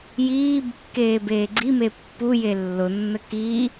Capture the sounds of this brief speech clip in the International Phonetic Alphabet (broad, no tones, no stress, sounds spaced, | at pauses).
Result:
j iː b kː eː b eː ɡ͡ǀ i m e pː u j e lː ʊ nː ə k i